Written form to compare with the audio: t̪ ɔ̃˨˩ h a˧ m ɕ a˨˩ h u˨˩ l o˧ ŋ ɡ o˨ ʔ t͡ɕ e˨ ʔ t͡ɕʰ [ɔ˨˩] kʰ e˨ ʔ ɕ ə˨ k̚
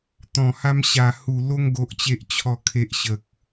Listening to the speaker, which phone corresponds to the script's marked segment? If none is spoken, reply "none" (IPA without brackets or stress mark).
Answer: ɔ˨˩